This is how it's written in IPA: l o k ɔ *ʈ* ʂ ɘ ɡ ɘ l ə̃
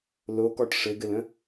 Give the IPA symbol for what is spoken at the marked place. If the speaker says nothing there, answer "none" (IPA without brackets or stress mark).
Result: ʈ